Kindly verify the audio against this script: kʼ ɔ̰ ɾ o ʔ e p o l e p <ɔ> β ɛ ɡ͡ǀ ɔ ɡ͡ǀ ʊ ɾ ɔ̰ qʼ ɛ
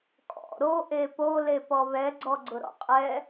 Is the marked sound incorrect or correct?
correct